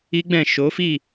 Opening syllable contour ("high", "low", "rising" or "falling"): high